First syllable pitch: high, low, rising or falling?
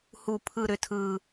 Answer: low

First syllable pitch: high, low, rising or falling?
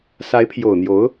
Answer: rising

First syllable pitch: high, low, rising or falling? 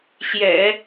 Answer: low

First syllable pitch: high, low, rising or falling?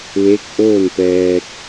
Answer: rising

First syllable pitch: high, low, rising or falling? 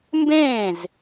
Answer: falling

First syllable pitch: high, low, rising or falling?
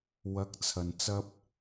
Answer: rising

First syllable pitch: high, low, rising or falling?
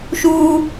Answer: high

